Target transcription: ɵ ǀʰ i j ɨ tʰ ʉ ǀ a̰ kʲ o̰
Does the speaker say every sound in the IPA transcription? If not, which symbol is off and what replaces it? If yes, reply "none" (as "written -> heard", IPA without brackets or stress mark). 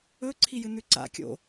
tʰ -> n